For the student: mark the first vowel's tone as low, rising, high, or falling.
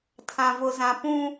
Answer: low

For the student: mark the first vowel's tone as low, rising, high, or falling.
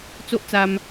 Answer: high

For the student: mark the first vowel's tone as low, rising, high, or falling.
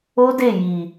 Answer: high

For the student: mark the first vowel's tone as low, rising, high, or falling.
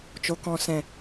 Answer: low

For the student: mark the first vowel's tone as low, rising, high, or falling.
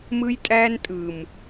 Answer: high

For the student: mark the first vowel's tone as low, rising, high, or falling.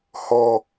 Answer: high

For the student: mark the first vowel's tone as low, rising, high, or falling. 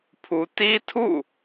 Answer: high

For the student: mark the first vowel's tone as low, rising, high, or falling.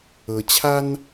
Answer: low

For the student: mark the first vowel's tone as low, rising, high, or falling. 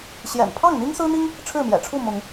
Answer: low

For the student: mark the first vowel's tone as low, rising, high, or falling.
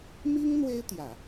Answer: high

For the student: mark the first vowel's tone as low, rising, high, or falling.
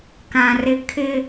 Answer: low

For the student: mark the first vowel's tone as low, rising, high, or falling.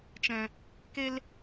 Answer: low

